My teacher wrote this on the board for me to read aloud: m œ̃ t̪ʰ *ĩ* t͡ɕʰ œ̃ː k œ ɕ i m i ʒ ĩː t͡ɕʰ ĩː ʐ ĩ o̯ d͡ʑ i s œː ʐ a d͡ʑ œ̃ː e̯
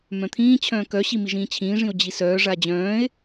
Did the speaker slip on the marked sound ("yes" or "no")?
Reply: yes